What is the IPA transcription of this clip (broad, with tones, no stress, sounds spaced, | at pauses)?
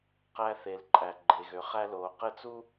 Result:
q æ˦ θ e˨ l ǃʼ æ˨ ɡ͡ǃ e˨ ɣ ø˨ χ æ˦ l oː˨ q ɘ˦˨ t͡s u˦